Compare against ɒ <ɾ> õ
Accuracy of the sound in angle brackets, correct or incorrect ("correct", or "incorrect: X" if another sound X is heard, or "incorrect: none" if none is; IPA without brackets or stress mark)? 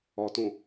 incorrect: t